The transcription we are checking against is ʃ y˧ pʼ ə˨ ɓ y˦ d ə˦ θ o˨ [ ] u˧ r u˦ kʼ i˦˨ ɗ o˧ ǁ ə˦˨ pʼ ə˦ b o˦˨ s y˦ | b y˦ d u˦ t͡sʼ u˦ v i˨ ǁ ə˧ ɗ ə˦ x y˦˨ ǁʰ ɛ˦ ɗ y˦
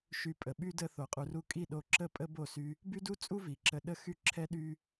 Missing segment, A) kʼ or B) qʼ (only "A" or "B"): B